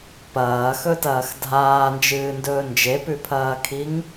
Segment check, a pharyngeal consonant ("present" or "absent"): absent